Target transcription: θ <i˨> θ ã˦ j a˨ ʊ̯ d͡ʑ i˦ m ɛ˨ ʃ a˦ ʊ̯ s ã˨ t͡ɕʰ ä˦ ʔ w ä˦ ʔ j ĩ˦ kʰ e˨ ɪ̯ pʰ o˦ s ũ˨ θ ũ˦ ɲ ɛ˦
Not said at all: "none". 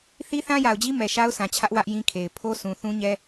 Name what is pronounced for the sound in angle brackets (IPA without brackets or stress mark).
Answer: i˦